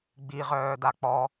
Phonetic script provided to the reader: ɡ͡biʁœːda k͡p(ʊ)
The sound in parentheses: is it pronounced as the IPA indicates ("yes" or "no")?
no